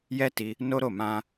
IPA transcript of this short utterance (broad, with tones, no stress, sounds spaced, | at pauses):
j ɛ˦ t i˧ | n o˦ ɾ o˦˨ m ã˧